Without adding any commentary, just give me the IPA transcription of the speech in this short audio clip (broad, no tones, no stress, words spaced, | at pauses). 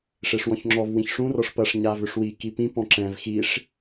ʂeʂwɔ̃çŋ͡ǁɔv wĩçʂũ rɔʂpɐʂ ɲavʏʂwi kipĩ pɔ̃ǁɛ̃v xiʂ